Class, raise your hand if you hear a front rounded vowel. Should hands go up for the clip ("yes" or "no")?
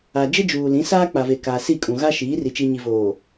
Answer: no